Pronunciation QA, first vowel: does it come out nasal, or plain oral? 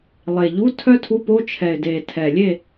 oral